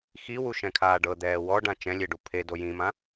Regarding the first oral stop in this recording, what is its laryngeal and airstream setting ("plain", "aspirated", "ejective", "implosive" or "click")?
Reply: aspirated